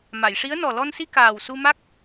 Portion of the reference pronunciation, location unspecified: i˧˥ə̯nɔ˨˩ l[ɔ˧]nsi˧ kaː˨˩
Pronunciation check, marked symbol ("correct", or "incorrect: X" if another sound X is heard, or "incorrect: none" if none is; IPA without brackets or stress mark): correct